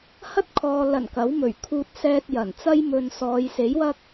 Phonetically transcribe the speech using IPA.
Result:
hɐ˥t̚kʰɔː˨ lɐ˨˩n kɐ˨˥wmɵ˨˩ɥ kʰuː˧t̚sɛː˧t̚ jɐ˨˩nt͡sɐ˥j mɵ˨n sɔː˨˧jse˨˥jwɐ˥k̚

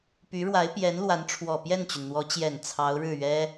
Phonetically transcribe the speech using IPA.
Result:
py˧˥ɻwa˧˥ɪ̯pjɛ˧˥n lwa˧˥nʈ͡ʂʰwɔ˨˩ pjɛ˥˩nt͡ɕy˩nn̪wɔ˧˥ t͡ɕjɛ˨˩n t͡sʰɑ˧˥ʊ̯ɻɻ̩˥˩ ɥɛ˥

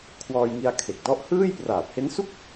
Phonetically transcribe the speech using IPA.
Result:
kʰwɔː˧jŋi˧a̯kʰe˨˩k̚ dɔ˦˥ʔhɯː˥˩j praː˨˩p̚he˦˥nsu˥˩k̚

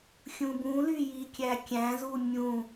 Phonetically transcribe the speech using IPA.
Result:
xʲũbũly jikʲækʲæ̃zu mʲũ

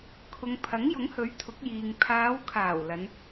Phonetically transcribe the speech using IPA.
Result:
kʰʊ˨ŋpʰɐ˨˥ŋjʊ˨˥ŋhɵ˨˥ɥ t̪ʰʊ˨˥k̚jiː˨ŋ pʰaː˨˧wkʰaː˨˩w lɐ˨˧n

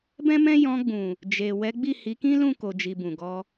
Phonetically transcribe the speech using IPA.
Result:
bɛ̃˦mɛ̃˦ jɔ̃˧ɡ͡bũ˨ | d͡ʒe˨ wɛ˨˦ɡ͡bi˦˨hi˨˦kĩ˦ lũ˦˨ko˨d͡ʒi˨ bũ˨ɡɔ˧

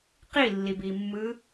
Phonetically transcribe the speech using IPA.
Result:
qilːibimːɯ

